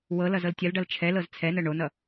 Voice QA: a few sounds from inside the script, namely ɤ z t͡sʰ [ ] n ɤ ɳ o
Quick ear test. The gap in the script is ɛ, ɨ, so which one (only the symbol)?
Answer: ɛ